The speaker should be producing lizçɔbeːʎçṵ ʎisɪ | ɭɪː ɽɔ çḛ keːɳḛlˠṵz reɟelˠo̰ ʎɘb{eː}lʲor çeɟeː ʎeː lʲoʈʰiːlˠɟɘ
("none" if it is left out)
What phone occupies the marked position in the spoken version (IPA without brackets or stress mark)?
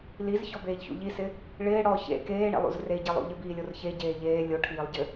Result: iː